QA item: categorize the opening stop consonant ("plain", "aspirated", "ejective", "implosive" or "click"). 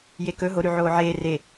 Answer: plain